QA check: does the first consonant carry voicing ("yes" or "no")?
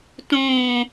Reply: no